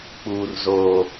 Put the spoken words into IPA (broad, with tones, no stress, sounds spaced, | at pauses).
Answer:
k͡p uː˦ r z oː˦